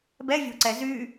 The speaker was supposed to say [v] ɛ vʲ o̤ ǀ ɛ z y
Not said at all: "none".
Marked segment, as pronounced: b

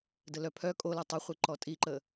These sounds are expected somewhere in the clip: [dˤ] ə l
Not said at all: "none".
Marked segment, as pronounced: d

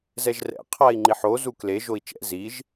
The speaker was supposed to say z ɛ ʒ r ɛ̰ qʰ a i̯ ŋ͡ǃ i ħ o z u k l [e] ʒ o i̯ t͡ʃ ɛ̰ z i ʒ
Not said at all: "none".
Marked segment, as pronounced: e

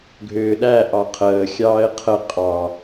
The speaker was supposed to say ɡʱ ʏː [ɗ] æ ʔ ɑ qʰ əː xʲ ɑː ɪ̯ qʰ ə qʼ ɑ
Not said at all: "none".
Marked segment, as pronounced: ɗ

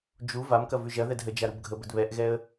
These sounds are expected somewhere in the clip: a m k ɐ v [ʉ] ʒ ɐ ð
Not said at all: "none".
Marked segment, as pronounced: ʉ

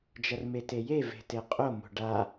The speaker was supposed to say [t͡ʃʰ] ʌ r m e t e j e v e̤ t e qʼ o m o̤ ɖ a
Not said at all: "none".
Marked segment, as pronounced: d͡ʒ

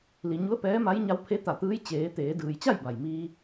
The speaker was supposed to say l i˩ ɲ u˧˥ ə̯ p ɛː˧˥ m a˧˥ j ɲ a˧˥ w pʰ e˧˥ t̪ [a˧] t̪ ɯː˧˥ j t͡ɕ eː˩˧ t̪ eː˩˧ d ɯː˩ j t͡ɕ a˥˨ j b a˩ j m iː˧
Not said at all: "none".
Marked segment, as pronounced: a˧˩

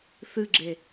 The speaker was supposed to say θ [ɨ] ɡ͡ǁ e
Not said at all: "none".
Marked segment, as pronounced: ɨ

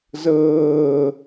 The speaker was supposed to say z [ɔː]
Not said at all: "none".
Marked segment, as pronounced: ɤː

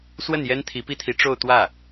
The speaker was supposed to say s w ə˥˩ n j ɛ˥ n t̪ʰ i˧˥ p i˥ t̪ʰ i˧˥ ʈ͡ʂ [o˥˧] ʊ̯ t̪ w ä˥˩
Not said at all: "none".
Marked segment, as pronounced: o˥˧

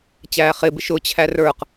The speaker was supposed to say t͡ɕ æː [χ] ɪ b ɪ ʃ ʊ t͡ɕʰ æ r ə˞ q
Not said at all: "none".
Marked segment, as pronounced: χ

